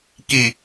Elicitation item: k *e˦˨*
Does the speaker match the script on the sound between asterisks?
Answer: no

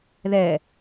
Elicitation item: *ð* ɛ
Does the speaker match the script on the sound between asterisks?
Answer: yes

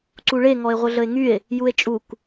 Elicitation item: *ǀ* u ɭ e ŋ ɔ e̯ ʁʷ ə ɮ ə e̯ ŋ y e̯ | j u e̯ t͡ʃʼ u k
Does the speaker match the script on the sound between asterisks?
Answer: yes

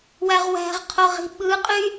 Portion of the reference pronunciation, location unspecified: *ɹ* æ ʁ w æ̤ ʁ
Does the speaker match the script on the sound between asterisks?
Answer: no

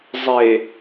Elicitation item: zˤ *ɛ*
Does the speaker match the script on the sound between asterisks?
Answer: no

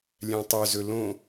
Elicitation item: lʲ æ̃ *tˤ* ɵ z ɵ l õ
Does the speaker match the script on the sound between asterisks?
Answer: yes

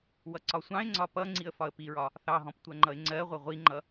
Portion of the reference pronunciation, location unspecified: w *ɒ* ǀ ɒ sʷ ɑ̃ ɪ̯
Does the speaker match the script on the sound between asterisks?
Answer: no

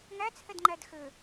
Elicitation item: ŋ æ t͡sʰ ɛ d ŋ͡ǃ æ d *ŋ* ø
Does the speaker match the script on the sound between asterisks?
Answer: no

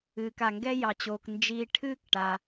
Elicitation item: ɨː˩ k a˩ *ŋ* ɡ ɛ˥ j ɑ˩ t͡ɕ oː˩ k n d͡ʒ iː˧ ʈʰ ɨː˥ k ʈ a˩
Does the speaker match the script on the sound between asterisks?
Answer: yes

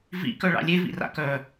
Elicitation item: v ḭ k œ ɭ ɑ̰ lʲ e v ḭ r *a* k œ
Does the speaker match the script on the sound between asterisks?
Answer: no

